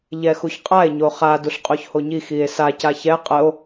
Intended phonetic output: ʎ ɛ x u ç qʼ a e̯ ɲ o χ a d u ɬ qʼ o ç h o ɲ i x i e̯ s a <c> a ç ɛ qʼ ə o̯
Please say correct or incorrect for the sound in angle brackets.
correct